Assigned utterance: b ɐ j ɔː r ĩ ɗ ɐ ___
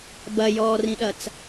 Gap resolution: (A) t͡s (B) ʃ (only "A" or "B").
A